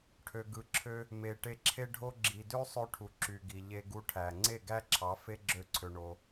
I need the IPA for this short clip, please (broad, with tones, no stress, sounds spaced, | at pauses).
ʈʰ ø˨ ɡ ɯ˨ ǁʰ ø˧ | m e˨ ʈ e˧ ǁʰ e˦ ɖʱ o˦ ɡ͡ǁ i˨ d ø˦ sˤ ø˧ ʈʰ u˨ ǁ y˨ ɡ i˨ ʎ e˧ ɡ u˧ ʈʰ æ˨ ŋ͡ǀ e˦˨ ɡ æ˦ ǁʰ ɑ˨˦ f e˦ ɡ͡ǁ ø˦ ǀʰ ø˧ ɳ o˧